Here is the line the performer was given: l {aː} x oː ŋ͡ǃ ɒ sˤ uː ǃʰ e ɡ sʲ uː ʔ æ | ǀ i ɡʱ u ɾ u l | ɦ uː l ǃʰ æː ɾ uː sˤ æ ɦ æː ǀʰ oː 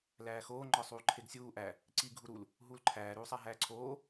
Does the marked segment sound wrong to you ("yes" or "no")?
yes